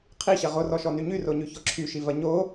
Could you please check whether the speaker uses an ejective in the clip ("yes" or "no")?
no